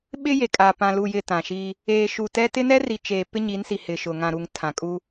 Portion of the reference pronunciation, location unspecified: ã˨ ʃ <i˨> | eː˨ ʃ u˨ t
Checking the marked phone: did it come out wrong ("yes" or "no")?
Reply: yes